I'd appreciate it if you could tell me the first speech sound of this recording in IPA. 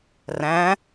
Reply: r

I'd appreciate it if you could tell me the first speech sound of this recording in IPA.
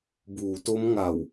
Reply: b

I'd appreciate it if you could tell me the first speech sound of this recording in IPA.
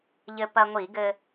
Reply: ʎ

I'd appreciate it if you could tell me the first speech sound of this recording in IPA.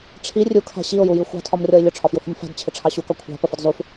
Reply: ʈ͡ʂʰ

